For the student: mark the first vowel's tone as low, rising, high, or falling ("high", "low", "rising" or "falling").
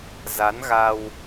rising